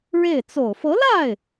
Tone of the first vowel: falling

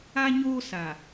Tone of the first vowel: high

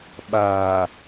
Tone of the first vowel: low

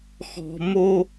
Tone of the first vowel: high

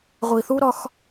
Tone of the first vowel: low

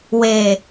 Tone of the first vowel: low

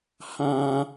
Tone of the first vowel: low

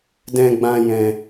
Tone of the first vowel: high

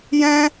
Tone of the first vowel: high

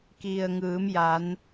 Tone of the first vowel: low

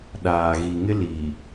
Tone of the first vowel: low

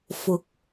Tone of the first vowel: rising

